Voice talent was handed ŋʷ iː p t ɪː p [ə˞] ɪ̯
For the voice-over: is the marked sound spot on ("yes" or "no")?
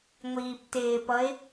no